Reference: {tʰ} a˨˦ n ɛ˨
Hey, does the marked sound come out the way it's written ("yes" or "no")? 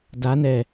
no